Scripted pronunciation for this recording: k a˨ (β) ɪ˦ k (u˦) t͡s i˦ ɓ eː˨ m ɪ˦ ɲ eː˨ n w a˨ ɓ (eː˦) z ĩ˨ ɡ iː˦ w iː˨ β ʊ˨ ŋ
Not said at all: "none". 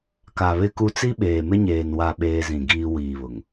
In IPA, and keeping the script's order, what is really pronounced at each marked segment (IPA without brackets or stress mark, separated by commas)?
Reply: β, u˦, eː˦